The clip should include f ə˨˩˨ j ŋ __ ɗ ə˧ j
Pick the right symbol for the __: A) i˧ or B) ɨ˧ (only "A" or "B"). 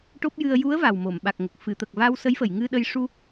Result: B